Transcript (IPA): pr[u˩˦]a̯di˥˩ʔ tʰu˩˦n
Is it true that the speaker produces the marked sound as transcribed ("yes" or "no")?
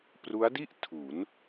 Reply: no